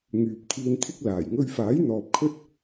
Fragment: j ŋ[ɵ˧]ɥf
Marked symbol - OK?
yes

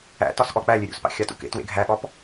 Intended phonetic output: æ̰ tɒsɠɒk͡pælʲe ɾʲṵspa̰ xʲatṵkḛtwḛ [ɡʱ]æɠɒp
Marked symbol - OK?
yes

